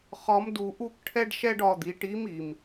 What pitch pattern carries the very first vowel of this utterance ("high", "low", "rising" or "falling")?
rising